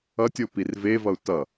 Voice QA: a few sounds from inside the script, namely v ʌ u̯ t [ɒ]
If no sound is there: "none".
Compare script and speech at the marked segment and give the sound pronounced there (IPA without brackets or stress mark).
ʌ